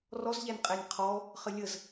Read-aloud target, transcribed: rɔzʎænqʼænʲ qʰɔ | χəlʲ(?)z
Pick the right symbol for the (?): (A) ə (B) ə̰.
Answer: A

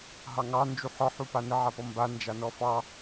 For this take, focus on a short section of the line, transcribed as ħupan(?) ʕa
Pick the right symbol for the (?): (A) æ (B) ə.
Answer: B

